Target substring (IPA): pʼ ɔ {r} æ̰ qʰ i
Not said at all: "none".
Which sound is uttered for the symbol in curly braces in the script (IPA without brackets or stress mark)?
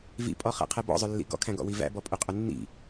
χ